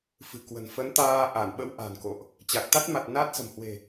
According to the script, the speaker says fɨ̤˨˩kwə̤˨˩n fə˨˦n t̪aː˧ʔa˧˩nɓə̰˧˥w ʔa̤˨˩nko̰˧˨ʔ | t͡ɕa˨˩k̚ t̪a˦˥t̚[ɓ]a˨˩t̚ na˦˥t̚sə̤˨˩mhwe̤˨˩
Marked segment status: incorrect: m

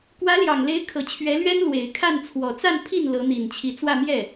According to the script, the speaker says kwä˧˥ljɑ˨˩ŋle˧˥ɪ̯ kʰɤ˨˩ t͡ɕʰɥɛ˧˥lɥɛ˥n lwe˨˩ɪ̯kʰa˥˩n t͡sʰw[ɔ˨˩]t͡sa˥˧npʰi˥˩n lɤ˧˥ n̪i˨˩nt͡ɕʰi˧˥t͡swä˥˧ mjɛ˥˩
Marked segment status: correct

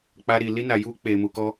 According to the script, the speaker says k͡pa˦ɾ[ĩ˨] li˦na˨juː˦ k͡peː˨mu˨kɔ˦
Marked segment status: incorrect: i˨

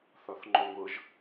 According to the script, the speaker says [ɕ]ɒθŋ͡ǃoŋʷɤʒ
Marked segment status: incorrect: θ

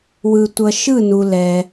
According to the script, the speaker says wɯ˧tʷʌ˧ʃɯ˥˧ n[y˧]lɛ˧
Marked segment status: incorrect: u˧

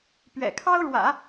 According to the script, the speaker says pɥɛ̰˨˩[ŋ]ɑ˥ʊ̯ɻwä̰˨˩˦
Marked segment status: incorrect: kʰ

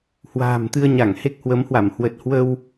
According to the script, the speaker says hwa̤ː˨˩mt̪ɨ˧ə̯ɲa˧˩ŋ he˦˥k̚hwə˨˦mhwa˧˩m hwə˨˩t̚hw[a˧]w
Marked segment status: incorrect: ə˧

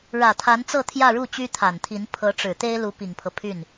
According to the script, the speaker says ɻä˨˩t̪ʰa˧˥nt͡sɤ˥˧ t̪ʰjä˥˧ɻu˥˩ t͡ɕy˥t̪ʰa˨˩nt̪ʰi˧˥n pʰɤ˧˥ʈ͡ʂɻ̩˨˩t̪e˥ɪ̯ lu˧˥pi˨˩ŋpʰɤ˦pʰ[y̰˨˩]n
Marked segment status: incorrect: y˥˩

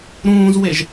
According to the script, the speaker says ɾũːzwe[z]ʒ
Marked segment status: incorrect: none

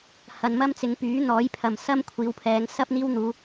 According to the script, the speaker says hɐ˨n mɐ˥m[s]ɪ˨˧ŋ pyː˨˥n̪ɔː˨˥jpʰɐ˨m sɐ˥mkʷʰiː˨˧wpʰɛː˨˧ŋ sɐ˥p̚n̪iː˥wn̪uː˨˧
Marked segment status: incorrect: t͡s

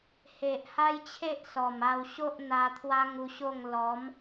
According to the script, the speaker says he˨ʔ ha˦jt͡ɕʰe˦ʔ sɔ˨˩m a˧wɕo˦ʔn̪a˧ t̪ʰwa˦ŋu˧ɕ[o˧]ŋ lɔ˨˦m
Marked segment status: incorrect: o˥˧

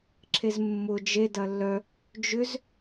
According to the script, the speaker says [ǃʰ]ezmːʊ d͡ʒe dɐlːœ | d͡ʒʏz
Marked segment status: incorrect: ǁʰ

